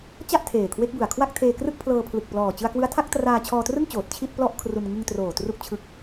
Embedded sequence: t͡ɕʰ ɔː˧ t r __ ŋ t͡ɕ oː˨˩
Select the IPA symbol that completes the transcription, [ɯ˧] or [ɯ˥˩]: ɯ˥˩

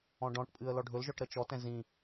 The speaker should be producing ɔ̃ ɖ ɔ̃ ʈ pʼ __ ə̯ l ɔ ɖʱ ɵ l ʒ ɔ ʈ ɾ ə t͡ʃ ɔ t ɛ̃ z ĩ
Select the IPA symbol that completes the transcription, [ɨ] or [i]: ɨ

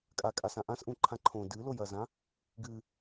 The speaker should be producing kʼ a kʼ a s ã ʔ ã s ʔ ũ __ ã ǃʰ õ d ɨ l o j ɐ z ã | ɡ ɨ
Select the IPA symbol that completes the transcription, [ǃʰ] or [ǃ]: ǃʰ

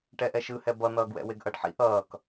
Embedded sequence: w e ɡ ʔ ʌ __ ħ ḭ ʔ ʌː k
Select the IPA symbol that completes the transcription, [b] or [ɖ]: ɖ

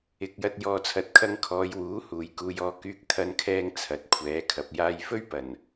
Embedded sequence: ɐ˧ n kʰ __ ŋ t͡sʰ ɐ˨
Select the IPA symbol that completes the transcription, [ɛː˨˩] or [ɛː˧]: ɛː˧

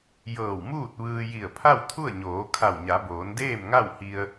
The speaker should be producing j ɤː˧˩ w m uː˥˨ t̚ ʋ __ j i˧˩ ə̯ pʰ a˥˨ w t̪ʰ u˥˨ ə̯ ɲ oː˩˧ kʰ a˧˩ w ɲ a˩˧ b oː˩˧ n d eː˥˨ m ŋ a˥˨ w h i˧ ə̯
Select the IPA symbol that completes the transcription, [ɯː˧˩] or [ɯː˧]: ɯː˧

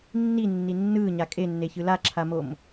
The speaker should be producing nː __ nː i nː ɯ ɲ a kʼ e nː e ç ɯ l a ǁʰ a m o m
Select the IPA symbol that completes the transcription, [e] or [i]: i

